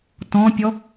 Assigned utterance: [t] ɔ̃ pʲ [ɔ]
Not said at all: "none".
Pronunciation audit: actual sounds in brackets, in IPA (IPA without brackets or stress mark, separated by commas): t, ɔ